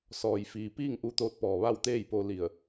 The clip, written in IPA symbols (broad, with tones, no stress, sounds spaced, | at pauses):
s ɔː˩ j f iː˩ p iː˥˨ ŋ ʔ u˧ t̪ oː˧ t̚ p ɔː˩ ʋ a˥˨ w t̪ eː˥˨ j p o˧ l i˧˩ ə̯